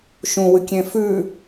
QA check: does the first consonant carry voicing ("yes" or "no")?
no